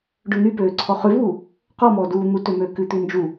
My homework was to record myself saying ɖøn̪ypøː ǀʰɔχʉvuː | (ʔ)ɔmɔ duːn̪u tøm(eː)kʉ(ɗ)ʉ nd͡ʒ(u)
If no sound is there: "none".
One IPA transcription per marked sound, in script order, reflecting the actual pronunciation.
q, øː, t̪, u

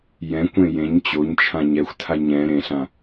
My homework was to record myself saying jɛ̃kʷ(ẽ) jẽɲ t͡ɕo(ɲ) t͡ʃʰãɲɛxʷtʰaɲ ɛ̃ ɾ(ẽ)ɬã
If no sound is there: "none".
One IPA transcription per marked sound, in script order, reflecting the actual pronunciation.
ẽ, ɲ, ẽ

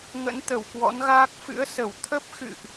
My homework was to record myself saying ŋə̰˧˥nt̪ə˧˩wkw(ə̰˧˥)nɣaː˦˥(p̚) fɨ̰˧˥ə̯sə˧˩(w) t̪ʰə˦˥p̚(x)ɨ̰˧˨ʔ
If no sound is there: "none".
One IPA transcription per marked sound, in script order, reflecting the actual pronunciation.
ɔ̰˧˥, k̚, w, x

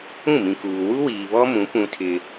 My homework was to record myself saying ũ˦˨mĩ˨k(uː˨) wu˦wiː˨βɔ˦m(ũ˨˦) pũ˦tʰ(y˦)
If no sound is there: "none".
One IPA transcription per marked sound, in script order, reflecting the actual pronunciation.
uː˨, ũ˨˦, ɪ˦

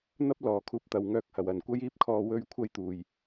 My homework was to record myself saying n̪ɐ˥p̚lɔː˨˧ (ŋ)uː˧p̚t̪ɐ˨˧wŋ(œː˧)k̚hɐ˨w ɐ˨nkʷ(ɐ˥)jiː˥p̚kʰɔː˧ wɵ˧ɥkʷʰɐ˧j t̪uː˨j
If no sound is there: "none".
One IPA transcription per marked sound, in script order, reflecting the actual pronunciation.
kʰ, œː˧, ɐ˥

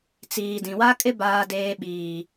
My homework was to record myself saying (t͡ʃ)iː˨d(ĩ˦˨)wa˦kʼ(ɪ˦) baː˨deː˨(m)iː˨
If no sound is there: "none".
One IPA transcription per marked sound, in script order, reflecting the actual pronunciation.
t͡s, ĩ˨, ɪ˦, ɓ

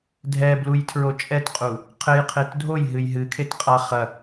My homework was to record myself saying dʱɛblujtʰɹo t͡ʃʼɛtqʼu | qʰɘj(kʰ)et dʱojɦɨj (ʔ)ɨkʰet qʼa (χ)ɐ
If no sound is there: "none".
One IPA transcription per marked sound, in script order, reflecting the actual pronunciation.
qʰ, ɦ, χ

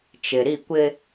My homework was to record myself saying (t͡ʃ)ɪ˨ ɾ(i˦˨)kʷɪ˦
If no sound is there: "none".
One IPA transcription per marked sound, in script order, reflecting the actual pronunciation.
t͡ʃ, i˦˨

